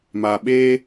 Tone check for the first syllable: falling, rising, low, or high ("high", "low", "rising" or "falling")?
low